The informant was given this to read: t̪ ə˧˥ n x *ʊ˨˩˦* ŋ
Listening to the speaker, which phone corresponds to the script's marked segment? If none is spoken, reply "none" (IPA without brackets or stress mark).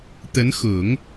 ʊ˨˩˦